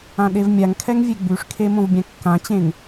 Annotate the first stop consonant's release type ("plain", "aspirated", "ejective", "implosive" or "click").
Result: implosive